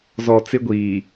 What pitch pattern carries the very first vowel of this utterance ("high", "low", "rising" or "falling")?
low